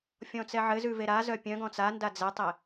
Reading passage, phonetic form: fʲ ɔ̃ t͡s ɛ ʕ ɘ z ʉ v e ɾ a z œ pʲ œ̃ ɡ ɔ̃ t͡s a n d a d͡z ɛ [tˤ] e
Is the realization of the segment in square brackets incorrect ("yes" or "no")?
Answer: no